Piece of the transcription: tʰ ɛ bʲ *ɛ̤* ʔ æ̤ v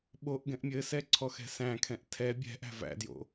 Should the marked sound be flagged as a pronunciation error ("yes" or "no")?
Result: no